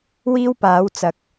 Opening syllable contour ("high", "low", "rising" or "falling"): high